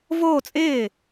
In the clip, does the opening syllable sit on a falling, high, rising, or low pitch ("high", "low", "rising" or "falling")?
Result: falling